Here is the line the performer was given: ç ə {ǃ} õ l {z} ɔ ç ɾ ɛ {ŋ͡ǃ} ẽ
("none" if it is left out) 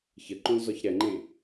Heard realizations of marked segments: ǃ, z, ŋ͡ǃ

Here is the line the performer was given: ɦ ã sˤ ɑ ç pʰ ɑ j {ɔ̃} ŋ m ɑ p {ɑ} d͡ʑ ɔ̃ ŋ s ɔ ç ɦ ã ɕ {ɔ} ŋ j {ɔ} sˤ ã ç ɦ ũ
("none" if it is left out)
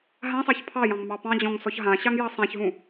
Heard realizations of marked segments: ɑ̃, ɑ̃, ɑ, ɑ

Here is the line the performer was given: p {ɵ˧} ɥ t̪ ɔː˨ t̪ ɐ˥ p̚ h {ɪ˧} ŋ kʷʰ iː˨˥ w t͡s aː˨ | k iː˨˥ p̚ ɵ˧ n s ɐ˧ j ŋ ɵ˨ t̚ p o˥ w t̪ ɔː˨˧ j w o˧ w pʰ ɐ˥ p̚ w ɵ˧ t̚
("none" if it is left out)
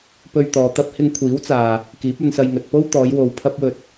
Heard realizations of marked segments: ɵ˧, ɪ˧

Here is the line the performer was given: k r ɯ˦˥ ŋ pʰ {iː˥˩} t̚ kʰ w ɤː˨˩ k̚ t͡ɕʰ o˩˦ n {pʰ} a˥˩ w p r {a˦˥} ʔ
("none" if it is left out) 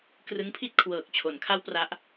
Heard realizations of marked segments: i˥˩, kʰ, a˦˥

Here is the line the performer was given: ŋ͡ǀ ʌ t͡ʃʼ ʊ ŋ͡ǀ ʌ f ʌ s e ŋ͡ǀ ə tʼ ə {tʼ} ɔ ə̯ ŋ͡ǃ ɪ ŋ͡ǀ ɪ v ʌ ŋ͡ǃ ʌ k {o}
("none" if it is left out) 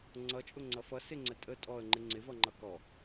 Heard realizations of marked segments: tʼ, ɔ

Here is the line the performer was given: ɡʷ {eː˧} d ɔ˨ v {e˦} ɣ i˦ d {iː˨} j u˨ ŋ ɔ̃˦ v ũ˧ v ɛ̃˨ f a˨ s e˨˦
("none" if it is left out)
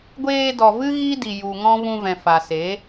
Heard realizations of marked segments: eː˧, ɨ˦, i˨

